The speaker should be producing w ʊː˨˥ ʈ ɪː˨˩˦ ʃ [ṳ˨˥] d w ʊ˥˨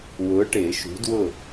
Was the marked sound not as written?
no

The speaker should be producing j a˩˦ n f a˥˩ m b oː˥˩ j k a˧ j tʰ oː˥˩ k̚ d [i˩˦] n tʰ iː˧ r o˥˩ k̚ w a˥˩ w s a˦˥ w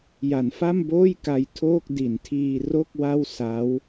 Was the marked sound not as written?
no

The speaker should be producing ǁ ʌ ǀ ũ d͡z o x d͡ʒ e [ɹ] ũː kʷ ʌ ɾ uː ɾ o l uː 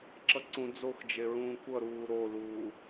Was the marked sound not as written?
no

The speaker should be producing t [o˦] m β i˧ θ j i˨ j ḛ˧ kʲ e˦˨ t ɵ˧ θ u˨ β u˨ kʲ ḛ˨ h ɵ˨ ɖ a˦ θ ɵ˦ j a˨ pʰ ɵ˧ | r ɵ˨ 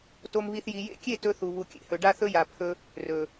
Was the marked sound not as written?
yes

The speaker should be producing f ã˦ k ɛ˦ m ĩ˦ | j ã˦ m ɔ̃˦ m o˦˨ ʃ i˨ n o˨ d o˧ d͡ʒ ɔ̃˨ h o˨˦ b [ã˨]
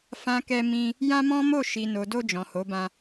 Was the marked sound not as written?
yes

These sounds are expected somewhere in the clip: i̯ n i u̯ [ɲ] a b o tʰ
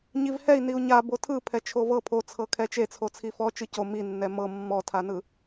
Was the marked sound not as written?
no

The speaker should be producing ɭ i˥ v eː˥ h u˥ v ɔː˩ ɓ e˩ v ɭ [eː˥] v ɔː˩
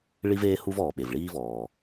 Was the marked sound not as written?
yes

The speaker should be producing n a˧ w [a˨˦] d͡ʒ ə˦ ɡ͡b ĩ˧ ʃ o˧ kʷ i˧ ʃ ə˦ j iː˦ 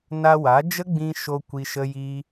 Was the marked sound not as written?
no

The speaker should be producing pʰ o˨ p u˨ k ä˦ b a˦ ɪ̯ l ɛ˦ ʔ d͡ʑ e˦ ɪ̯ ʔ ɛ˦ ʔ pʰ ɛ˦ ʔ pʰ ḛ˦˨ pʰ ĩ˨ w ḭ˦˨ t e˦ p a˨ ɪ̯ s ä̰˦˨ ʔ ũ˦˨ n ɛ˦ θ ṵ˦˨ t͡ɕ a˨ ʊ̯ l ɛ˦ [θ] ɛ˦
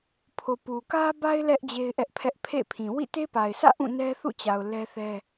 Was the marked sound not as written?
no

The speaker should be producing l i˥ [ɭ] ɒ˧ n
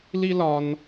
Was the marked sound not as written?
yes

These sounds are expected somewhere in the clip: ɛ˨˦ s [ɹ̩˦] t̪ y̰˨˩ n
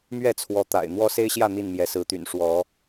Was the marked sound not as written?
yes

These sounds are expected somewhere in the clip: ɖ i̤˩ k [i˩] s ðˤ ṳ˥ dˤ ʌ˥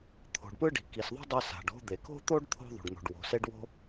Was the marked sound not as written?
no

